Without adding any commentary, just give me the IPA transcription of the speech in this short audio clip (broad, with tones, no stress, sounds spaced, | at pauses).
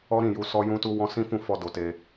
ɔ˦ ɾ ĩ˦˨ j u˧ s ɔ˦ j ũ˦ t u˦ w ɔ̃˦ s ĩ˦ f ũ˦˨ f ɔ˧ d o˧ t e˧